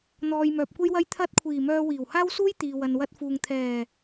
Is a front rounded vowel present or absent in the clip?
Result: present